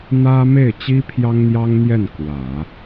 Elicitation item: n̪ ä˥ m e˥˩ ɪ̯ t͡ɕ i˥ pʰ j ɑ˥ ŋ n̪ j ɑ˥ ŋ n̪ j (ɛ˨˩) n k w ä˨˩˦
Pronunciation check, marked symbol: incorrect: ɛ˥˩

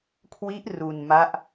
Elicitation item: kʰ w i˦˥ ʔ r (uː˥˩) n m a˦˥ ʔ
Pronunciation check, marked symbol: incorrect: uː˧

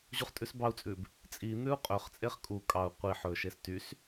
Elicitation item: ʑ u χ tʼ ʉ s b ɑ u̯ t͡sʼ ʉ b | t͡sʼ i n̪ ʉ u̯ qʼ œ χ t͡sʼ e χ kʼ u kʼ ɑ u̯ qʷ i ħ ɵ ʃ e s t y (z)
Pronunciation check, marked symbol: incorrect: s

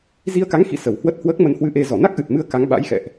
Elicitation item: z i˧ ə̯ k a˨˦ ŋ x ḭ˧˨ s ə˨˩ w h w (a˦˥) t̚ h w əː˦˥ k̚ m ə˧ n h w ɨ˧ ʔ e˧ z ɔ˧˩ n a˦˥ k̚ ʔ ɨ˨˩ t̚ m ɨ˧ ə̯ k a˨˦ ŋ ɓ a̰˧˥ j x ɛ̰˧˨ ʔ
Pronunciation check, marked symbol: incorrect: ə˦˥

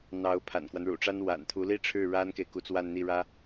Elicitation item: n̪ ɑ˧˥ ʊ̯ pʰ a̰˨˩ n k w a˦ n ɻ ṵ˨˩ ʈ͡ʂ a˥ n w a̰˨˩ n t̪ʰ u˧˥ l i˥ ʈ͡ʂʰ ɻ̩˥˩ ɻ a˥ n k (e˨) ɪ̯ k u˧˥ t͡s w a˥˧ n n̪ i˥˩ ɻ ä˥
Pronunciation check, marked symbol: correct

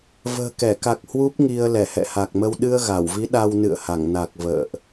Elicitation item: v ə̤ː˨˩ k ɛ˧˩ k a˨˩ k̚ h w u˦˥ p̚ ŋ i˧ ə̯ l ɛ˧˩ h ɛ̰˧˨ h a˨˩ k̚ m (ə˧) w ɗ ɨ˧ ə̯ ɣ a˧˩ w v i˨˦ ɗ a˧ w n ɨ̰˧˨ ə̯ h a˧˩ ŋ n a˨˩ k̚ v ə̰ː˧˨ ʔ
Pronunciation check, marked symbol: correct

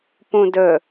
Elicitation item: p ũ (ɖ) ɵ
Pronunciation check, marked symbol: incorrect: d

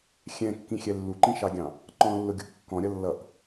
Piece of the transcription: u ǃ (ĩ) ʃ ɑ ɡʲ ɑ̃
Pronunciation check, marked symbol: correct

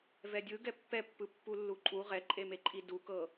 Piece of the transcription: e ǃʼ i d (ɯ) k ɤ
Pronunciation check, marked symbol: incorrect: u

